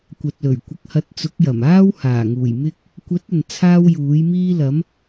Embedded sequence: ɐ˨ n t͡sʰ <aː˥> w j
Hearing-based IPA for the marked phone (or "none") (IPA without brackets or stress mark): aː˥